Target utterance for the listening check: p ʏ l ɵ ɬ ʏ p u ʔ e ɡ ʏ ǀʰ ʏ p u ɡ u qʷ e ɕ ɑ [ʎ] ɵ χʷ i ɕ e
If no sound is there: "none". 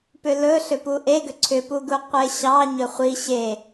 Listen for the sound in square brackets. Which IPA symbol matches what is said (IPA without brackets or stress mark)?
ɲ